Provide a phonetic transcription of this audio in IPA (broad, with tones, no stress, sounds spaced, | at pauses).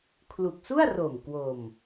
kʰ l u˨˩ k̚ s u˥˩ a̯ r o˨˩ m k w o˧ m